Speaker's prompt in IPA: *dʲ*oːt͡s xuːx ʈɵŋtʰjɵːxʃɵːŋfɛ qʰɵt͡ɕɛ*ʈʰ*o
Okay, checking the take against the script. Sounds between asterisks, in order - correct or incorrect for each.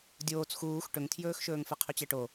correct, incorrect

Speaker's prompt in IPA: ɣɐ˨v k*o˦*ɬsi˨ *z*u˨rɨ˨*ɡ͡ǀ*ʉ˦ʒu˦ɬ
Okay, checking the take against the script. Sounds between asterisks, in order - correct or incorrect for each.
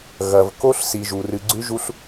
correct, incorrect, correct

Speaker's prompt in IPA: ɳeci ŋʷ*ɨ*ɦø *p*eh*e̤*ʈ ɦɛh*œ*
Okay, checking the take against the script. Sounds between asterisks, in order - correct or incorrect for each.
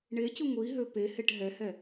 incorrect, correct, incorrect, incorrect

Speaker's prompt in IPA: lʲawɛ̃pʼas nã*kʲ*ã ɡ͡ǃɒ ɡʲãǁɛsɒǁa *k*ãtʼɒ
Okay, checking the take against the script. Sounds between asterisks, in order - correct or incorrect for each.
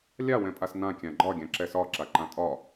correct, incorrect

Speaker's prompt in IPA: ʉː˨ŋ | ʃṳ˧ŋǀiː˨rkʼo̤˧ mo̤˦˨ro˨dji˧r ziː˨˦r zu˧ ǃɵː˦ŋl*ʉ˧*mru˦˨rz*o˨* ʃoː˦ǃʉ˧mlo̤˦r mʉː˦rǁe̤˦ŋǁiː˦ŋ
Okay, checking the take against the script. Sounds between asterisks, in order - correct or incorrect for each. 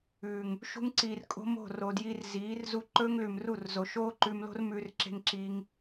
incorrect, correct

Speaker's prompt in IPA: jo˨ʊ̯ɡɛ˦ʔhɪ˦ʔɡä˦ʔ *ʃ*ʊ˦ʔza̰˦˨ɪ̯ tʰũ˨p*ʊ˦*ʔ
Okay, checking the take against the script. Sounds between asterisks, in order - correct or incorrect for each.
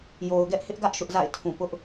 correct, correct

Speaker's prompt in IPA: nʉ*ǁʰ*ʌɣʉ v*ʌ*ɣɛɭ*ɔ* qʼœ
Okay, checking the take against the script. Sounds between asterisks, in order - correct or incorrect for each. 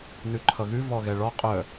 incorrect, incorrect, correct

